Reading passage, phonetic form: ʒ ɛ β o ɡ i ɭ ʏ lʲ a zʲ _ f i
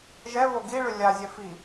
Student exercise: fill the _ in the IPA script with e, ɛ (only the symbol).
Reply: ɛ